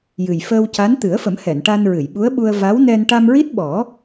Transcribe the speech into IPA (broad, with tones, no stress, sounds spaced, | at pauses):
j ɨ˨˩ j f əː˧ w c a˧˥ n t̪ ɨ˨˩˦ ə̯ f ə˨˩˦ m h ɛ˨˩˨ n ʈ a˧ n ɹ ɨ˨˩˨ j ɓ u˧˥ ə̯ ɓ u˧ ə̯ v a˧˥ w n ɛ˧ n ʈ a˧ m ɹ i˦˥ t̚ ɓ ɔ˨˩˦